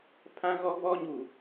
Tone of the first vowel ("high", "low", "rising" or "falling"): high